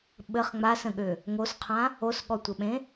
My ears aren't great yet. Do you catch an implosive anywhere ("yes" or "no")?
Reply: yes